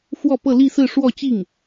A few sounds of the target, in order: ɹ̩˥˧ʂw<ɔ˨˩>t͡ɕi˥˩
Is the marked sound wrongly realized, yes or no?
yes